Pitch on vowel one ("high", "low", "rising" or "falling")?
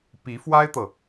rising